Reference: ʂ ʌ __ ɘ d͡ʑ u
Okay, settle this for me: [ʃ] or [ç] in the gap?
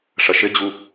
ʃ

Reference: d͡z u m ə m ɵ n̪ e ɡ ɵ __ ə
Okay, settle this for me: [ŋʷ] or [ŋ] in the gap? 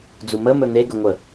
ŋʷ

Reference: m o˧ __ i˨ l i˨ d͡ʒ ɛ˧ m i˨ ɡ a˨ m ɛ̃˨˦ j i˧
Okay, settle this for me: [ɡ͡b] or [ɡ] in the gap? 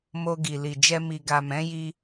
ɡ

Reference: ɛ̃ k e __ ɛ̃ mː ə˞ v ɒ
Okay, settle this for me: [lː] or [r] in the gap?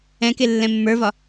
lː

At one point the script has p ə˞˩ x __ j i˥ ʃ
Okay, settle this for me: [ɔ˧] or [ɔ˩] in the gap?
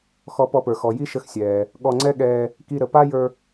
ɔ˩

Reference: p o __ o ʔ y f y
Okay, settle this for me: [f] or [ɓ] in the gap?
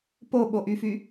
ɓ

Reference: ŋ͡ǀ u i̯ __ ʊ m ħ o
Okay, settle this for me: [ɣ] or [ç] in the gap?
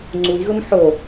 ɣ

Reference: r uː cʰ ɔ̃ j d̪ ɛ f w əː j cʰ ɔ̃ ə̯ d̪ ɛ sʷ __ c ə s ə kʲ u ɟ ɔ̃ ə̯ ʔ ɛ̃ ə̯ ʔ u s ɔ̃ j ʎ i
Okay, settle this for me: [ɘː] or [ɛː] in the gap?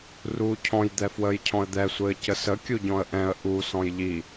ɘː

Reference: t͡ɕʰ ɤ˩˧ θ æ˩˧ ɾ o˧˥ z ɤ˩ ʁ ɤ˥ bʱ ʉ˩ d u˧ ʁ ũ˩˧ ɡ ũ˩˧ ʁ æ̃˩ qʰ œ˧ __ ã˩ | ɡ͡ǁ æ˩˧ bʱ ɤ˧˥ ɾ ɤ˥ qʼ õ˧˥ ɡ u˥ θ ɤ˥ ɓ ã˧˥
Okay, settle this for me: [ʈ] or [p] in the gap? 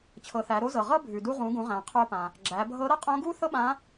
p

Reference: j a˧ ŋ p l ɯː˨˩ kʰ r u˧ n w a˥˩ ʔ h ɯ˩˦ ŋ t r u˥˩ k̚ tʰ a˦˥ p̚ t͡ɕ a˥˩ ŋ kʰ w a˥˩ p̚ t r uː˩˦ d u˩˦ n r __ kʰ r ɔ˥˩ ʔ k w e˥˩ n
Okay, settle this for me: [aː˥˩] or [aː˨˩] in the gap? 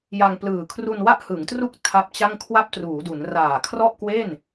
aː˨˩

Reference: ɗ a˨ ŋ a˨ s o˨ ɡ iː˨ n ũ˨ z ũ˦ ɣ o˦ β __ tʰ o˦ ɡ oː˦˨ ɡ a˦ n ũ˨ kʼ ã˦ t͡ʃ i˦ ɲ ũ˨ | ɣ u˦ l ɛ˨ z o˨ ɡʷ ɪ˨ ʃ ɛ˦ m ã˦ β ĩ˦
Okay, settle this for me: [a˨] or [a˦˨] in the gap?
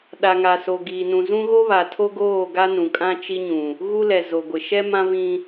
a˨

